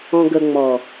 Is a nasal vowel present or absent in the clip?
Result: present